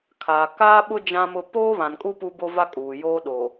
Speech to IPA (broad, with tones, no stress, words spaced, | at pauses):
kʰaː˨kaː˦ɓʊ˦ d͡ʒã˦mʊ˦ poː˦βã˨nkʼu˦ pu˦bo˦va˦kʼuː˨ joː˦ɗo˨